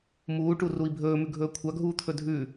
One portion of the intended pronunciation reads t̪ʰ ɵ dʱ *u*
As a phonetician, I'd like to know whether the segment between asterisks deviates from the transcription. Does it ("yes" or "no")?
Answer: yes